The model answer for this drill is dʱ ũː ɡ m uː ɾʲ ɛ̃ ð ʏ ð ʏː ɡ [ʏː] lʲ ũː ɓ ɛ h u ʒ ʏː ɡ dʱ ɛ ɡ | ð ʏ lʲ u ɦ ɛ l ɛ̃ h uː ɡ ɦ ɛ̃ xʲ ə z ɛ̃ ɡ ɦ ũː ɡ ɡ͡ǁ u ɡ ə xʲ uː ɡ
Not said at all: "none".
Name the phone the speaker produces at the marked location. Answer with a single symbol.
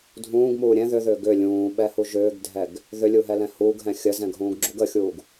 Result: ʏ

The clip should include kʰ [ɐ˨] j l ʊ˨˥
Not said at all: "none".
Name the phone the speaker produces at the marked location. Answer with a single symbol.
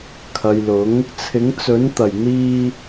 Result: ɐ˨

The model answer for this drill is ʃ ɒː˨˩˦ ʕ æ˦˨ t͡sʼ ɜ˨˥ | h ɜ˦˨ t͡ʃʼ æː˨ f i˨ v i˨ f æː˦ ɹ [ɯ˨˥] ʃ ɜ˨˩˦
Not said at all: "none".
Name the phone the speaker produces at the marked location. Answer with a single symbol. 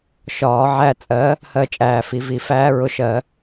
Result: ʊ˨˥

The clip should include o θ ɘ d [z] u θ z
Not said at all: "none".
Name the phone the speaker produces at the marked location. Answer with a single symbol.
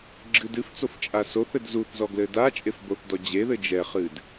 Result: z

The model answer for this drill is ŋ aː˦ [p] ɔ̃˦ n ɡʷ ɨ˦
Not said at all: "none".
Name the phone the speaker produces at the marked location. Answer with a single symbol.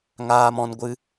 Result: m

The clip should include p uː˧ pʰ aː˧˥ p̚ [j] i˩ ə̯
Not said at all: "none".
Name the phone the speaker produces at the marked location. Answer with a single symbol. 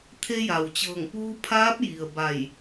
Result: j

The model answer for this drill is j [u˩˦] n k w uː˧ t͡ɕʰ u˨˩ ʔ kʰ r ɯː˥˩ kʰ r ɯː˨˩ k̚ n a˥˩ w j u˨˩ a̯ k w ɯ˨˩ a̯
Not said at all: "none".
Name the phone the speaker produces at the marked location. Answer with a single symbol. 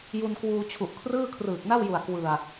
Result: u˧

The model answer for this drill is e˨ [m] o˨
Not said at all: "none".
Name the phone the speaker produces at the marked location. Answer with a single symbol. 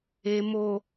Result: m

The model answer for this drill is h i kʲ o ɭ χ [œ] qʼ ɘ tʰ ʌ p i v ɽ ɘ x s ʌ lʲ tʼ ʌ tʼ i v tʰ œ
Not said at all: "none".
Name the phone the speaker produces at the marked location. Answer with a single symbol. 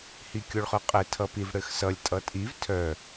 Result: œ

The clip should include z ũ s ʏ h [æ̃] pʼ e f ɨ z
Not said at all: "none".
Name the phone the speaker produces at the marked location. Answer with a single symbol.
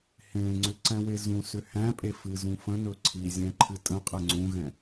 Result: æ̃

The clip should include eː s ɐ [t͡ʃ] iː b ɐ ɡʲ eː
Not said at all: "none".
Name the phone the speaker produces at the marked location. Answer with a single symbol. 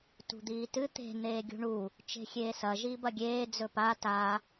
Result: ʒ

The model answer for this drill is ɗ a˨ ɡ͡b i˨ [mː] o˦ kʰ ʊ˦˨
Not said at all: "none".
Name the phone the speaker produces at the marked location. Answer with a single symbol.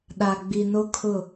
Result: n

